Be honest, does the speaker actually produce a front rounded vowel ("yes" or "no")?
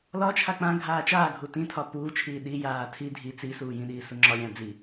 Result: no